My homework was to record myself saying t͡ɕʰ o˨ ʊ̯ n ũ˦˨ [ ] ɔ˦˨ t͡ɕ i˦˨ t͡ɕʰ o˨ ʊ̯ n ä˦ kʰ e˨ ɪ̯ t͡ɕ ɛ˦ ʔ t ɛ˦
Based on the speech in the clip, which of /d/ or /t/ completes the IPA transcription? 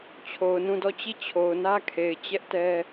d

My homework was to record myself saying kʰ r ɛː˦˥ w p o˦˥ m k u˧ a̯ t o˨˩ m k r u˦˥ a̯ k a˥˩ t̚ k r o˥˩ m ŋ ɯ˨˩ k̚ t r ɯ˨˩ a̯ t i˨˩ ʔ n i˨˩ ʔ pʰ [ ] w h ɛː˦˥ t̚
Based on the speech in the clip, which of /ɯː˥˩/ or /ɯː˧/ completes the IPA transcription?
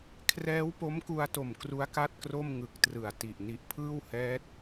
ɯː˥˩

